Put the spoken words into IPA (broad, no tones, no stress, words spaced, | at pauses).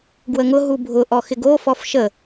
ɡwəŋʊ ɦubʱʊ ʔɔxɪɡo fɔfʃə